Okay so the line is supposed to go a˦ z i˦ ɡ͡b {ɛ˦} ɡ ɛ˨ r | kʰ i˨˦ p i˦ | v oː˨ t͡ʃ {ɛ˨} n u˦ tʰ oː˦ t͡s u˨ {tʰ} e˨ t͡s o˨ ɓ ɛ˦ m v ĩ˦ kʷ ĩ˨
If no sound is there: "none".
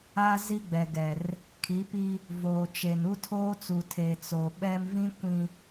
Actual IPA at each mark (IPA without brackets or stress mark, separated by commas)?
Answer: ɛ˨, e˨, tʰ